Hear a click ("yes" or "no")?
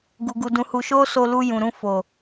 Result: no